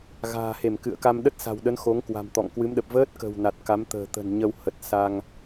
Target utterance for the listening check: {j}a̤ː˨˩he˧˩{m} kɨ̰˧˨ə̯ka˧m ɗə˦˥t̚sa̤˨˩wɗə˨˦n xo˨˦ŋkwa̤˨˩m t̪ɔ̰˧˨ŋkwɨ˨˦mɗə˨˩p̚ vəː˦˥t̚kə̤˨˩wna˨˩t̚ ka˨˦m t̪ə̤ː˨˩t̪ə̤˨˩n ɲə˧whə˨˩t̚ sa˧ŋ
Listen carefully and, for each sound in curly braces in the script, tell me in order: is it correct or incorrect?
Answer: incorrect, correct

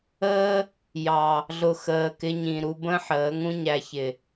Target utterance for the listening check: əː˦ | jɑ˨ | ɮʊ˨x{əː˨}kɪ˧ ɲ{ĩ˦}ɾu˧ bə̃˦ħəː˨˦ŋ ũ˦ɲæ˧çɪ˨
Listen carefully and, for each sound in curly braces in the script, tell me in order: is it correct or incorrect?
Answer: correct, incorrect

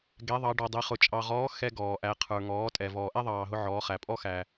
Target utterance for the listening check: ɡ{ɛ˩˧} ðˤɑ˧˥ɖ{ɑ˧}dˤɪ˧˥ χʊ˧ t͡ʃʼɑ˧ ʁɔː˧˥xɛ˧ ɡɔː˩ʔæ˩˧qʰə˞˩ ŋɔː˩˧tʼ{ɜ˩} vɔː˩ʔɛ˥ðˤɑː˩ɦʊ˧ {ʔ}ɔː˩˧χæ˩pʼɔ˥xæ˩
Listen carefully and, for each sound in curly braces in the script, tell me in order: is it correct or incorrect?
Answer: incorrect, incorrect, incorrect, incorrect

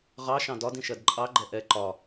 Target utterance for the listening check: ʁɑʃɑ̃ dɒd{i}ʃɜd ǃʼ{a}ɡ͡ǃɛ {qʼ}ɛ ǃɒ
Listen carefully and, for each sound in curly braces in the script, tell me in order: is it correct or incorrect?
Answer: incorrect, incorrect, incorrect

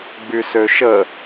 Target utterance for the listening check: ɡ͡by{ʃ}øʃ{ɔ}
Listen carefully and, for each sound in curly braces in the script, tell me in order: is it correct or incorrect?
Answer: incorrect, incorrect

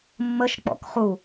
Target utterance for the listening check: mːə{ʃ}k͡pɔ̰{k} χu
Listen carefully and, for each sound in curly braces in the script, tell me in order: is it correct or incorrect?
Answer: correct, correct

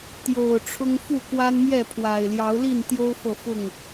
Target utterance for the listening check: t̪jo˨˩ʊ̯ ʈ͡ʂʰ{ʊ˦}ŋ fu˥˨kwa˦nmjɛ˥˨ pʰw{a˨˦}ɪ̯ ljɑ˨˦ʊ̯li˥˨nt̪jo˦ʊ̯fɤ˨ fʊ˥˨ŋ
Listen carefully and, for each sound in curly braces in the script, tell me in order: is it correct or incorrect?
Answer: correct, incorrect

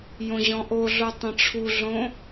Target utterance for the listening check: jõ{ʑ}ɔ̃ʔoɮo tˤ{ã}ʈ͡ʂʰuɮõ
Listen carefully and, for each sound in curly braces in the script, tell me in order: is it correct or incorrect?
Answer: correct, incorrect

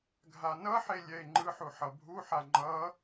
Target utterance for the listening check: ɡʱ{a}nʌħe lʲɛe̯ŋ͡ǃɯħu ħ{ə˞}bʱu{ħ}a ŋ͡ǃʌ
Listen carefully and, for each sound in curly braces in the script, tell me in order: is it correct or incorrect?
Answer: correct, incorrect, correct

